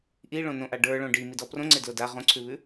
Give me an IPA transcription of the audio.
ʔ i ɭ õ n õ ʔ a ɖ ə˞ ɭ õ ɖ i m i d ɔ p r õ ŋ͡ǀ e d l o d a ʁ õ ǀʰ ʉ β ʉ

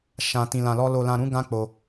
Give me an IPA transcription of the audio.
ʃ ã˨ t ĩ˨ l ã˨ l ɔ˧ l o˨ l ã˨ ɾ ũ˨˦ ɡ ã˧ k͡p o˧

